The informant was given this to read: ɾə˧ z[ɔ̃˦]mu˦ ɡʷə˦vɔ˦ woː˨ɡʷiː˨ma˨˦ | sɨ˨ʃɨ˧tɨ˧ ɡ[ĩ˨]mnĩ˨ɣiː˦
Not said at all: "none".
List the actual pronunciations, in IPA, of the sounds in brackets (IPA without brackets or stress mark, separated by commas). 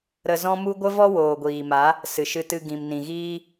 ɔ̃˦, ĩ˨